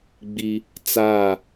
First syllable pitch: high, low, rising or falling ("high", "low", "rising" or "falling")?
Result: high